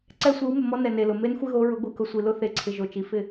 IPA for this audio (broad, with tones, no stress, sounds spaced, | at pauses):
ǀ ɛ˦ sʷ i˨˦ w m ʊ˨ m ɔ˦ n ɛ˨ n e˨ l ʊ˨ m e˦ n xʷ ɪ˦ ɣ o˨˦ ɹ ʊ˨˦ ɡʷ i˨ k ʊ˨ sʷ i˨ l ʊ˦ θ e˨ ǀʰ ɪ˨ ʒ o˨ t͡ʃ i˨ f ɪ˦˨